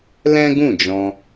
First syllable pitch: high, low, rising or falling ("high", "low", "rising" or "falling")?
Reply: high